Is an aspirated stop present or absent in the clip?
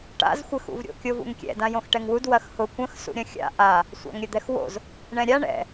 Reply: absent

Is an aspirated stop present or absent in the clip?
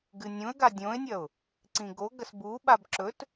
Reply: absent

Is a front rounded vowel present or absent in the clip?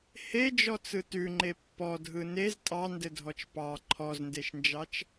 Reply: absent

